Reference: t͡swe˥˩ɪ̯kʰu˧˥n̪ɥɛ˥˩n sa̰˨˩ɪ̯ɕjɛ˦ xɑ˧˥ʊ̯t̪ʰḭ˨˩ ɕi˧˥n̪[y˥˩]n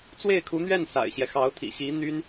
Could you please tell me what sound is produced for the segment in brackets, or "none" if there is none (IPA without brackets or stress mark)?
y˥